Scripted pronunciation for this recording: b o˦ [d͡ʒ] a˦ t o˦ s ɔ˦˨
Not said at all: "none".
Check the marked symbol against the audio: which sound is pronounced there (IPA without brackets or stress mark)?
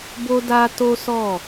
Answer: d